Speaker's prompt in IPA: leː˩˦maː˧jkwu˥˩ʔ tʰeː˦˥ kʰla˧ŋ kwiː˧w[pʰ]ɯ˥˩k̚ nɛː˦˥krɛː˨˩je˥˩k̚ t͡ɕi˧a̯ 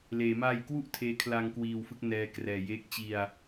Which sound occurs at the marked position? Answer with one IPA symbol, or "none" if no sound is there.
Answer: f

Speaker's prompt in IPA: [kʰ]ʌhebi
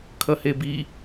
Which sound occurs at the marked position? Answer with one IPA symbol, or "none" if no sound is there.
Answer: kʰ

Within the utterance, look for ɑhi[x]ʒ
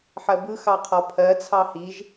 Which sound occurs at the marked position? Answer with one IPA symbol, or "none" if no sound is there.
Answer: none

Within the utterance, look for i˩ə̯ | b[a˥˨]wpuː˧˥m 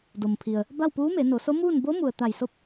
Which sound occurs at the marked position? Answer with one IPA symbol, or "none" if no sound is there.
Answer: a˥˨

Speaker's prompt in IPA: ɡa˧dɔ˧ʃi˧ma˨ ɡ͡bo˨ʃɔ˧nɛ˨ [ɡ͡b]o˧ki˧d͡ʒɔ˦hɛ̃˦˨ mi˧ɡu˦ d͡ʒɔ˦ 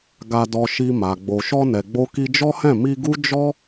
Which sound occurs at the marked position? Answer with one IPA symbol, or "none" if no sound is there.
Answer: ɡ͡b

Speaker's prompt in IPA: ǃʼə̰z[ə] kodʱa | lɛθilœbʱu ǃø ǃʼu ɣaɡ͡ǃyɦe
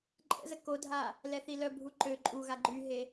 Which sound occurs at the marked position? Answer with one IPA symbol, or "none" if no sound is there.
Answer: ə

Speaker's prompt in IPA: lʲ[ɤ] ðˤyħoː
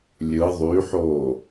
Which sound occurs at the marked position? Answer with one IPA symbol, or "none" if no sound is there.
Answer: ɯ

